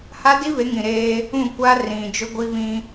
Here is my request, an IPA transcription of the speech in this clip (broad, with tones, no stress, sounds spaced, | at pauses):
h a˦ d i˦ β e˨˦ ŋ ĩ˨ ɾ eː˦ | ũ˦˨ kʷ a˦ r ĩ˨ d͡ʒ ʊ˦ ɡʷ i˦ β ĩ˦